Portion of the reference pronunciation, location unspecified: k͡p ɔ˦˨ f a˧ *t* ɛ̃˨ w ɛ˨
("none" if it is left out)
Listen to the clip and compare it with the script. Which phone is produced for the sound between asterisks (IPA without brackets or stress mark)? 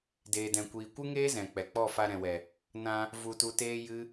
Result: ɾ